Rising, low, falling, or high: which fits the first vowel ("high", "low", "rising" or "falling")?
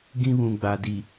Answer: high